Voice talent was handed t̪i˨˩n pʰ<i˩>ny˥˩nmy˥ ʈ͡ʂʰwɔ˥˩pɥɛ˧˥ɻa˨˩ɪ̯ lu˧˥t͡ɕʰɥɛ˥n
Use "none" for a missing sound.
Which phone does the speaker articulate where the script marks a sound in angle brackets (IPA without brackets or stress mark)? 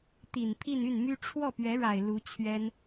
i˥˧